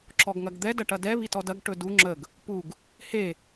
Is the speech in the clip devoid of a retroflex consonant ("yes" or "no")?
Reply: no